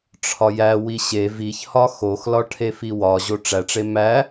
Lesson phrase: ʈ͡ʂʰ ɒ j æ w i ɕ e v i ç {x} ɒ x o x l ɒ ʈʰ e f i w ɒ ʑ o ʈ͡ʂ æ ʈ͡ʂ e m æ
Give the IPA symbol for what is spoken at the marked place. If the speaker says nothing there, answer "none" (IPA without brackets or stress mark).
h